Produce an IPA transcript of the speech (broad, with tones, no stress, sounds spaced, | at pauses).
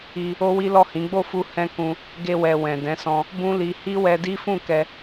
i˧ | o˦ w i˦ l ɔ˦˨ h ĩ˨˦ ɡ͡b o˦˨ f u˧ h ɛ̃˦ k ũ˧ | ɡ e˧ w ɛ˨ w ɛ̃˨ d ɛ̃˨˦ s ɔ̃˧ | b ũ˦ l i˧ h i˦ w ɛ˧ d i˦ f ũ˦˨ k ɛ˧